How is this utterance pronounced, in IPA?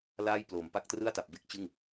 laː˥˩j ploː˩˦mpa˦˥k̚trɯ˥˩a̯ ta˨˩p̚be˥˩k̚t͡ɕɯ˥˩ŋ

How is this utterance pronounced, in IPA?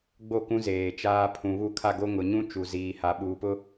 ɡ͡bo˦˨kũ˦zeː˨ t͡ʃaː˦ pʰũ˨βu˦ kʰa˦˨ɡo˦ ŋʊ˨ɲũ˦ t͡ʃu˨ziː˨ ha˨ɓuː˨pʊ˦

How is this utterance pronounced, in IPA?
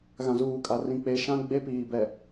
ɣã˨zuː˨kʼa˨rĩ˨ k͡pe˨ʃã˦ ɡ͡be˦piː˨bɛ˨

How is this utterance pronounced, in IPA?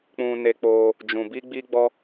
k͡pũ˧ne˧k͡po˧ | d͡ʒũ˨bi˧ ɡ͡bi˦ɡ͡bɔ˦

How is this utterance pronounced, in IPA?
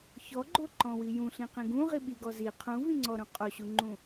çɔɡ͡ǃoǃɔ̃wi jũɬĩqĩ ɡũʁi ɓiɡɔ zi qʰũvĩŋ͡ǀɔɾũ qʼoɕuŋ͡ǃũ

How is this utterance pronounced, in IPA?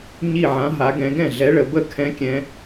ɲi˧˩ʕã˩˧ ɦa˩˧ɡɛ̃˩˧ ɡɛ̃˥˩ɮɛ˨˥ɭə˩˧bə˥˩ kʰɛ̃˨˥kʲɛ̃˩˧

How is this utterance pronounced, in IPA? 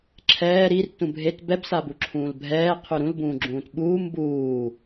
ǁʰɛː ɾir tũbʱet bɛbsabu ǁʰũːlbʱɛːqʰʉ ɾũlbũːɡ͡ǁũːt ɓuːm buː

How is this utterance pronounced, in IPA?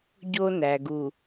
ɟo˦næ˨ɡu˨

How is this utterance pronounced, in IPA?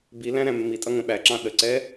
bi læ̃ɾæ̃mːitʼʌ ŋə̃ɓæǁɑ̃ ɗəǀɛ

